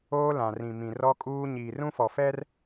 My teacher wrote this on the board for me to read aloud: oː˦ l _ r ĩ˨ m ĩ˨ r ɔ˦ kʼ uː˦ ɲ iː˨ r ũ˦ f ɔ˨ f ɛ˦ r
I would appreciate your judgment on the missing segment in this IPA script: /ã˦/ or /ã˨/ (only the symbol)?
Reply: ã˨